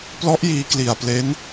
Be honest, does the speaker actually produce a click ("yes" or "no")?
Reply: no